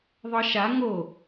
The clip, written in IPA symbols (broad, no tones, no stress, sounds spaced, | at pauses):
ðˤ ɤ ʃ a ŋ o